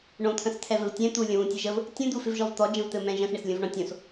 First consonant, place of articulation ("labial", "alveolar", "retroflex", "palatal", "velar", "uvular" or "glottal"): retroflex